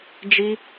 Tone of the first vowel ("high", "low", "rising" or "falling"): high